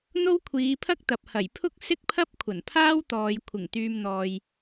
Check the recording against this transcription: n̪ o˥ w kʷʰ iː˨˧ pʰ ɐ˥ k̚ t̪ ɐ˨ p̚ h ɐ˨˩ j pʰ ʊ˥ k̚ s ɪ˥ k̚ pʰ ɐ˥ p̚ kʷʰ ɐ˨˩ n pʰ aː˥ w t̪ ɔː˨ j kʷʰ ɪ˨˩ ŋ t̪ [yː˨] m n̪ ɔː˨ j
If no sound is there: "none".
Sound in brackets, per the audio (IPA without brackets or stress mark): yː˨